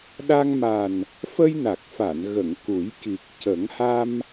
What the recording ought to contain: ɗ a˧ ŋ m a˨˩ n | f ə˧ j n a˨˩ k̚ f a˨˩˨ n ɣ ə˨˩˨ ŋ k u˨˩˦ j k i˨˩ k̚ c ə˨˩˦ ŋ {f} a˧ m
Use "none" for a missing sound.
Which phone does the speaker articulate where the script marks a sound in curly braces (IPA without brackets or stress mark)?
h